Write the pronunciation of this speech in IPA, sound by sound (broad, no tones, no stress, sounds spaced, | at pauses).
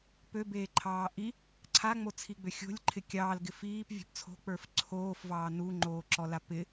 p ø b eː ǃʰ ɑː ʔ i | ǀʰ a ŋ͡m o t͡sʰ i ɡ͡b ø xʲ o̤ lʲ ǃʰ ɪ kʲ ɑː l ɡ ɪ f iː p vʲ ɔ̤ p t͡sʰ o̤ k͡p ə˞ f ǀʰ oː f v ɑː n u ŋ͡ǃ oː ǁ ɔ l a p ɪ